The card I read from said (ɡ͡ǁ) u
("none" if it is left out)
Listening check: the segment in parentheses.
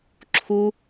ǁʰ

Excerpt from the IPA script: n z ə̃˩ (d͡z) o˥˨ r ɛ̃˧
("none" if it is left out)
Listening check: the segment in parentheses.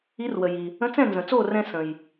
t͡s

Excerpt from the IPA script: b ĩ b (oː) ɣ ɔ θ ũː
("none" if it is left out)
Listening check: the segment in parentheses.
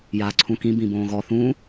õː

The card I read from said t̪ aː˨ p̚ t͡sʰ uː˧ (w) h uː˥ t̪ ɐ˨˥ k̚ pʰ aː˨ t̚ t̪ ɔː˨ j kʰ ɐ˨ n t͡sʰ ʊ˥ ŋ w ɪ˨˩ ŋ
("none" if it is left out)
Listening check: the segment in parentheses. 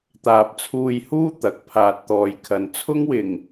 j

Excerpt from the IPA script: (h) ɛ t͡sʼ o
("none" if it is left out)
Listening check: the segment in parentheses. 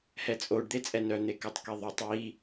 h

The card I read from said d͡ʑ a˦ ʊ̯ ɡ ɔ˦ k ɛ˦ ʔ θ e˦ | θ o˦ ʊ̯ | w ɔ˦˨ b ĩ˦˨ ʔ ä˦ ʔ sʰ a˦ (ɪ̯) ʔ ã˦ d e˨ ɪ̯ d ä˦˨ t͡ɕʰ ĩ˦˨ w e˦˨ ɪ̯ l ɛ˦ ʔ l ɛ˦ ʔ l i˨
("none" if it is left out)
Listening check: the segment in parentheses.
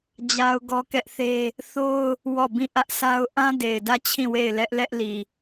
ʊ̯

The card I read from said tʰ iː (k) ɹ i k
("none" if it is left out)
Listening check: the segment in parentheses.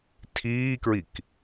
k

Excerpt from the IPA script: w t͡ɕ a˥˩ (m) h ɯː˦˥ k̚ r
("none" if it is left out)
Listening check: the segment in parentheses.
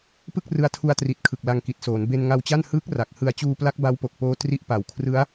n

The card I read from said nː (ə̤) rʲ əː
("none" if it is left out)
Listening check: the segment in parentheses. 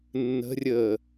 ə̤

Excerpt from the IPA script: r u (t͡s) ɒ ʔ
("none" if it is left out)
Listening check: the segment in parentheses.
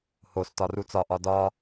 t͡s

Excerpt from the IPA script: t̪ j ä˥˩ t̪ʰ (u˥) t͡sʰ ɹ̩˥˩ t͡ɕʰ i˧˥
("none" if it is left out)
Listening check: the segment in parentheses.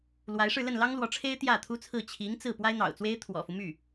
u˥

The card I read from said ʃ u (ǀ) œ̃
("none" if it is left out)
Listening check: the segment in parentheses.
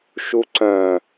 ǀ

